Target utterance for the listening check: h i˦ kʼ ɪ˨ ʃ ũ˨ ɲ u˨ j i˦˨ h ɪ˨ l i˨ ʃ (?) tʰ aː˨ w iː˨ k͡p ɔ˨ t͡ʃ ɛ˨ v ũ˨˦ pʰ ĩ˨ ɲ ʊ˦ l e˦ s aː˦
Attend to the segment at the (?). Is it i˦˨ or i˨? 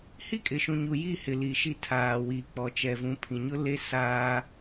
i˦˨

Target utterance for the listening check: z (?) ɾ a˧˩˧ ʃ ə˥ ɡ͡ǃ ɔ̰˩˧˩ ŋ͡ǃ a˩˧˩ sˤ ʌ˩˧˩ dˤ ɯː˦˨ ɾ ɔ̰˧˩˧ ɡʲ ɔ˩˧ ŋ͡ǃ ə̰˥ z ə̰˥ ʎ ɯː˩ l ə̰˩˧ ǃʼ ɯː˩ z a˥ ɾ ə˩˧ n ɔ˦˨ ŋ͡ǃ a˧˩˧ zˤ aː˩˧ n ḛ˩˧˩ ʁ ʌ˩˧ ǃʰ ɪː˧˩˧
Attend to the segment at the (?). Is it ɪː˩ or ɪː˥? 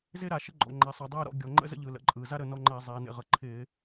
ɪː˥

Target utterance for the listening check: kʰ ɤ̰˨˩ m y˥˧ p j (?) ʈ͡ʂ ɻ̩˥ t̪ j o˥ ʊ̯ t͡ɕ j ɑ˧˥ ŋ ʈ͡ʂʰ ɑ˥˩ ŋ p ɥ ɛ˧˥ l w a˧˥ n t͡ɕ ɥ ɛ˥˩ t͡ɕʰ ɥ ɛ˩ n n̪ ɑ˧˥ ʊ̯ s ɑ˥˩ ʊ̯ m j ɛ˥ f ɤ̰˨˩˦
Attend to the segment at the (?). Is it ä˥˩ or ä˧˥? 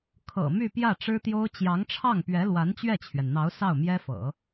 ä˥˩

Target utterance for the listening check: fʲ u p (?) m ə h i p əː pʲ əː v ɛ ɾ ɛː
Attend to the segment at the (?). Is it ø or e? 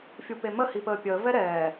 e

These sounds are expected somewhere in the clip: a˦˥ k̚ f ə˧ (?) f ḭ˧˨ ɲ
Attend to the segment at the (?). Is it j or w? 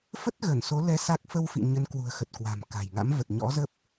w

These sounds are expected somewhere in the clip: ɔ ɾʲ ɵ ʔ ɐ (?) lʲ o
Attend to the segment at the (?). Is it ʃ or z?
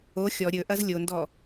z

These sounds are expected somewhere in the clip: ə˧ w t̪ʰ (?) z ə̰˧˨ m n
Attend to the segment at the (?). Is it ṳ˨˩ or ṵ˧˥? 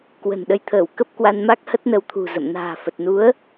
ṳ˨˩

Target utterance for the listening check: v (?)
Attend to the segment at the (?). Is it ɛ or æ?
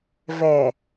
ɛ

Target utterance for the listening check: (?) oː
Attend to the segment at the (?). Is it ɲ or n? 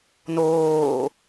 n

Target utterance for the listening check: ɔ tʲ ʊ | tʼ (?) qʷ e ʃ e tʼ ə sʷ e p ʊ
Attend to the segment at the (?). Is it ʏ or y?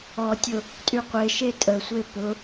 y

